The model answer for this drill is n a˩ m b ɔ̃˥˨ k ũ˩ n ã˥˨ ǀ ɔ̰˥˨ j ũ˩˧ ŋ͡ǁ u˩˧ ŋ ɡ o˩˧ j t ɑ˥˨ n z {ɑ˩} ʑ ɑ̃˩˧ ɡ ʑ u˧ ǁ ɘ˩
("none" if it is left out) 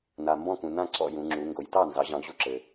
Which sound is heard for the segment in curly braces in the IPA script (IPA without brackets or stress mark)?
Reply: ɑ˩˧